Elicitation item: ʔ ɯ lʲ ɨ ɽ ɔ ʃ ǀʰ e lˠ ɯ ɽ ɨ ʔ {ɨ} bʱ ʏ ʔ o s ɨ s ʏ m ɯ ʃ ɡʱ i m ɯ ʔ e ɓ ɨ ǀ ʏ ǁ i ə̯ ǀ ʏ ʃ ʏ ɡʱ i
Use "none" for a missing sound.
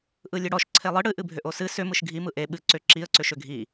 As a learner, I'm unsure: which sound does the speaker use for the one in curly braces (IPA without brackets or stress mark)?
ɨ